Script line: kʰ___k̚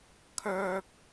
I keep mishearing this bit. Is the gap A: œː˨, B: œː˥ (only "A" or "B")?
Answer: A